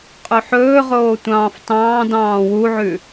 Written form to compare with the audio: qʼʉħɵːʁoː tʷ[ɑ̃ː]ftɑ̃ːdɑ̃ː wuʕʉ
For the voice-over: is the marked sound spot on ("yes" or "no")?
yes